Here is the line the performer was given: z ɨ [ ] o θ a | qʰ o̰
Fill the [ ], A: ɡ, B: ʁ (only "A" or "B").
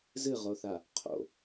B